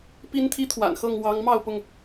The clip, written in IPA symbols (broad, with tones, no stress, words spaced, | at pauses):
pi˦nt̪ʰi˦t̪ʰwa̰˨˩nxɤ˥˨ŋ wɑ˨˦ŋ mɑ˥˨ʊ̯pʊ˥˨ŋ